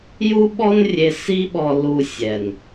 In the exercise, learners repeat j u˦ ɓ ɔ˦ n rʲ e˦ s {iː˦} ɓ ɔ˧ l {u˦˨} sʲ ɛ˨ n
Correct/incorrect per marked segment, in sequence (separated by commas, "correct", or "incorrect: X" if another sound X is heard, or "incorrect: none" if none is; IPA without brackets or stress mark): incorrect: i˦, incorrect: u˧